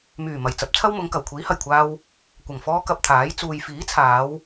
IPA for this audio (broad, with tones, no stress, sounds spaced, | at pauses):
m yː˨˩ m ɐ˨˩ j t͡s ɐ˨˥ p̚ t͡sʰ ɐ˥ w m ʊ˨˧ ŋ k ɐ˨˩ w kʷʰ iː˨˥ h ɐ˨˩ j kʷʰ aː˧ w | kʷ ɐ˨˩ ŋ f ɔː˧ k ɐ˧ p̚ t̪ʰ aː˨˥ j t͡s uː˨ j f iː˨˥ t͡sʰ aː˨˧ w